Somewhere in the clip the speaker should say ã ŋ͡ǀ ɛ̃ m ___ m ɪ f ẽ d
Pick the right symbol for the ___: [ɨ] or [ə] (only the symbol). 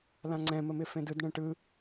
ə